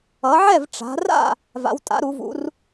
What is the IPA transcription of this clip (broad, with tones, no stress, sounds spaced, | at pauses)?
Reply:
ʌ˩˧ ʕ ɛ˥˨ v ʈ͡ʂ a̤˩˧ r a̰˥˨ | v a̰˩˧ w tʼ a̰˩˧ ɾ u˩˧ v ṵ˩˧ r